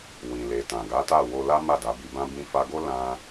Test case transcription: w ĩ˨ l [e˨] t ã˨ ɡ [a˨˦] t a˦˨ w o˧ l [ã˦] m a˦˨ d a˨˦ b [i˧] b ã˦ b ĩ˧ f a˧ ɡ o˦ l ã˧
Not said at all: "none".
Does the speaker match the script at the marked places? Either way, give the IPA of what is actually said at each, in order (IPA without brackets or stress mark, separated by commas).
e˨, a˨˦, a˦, i˧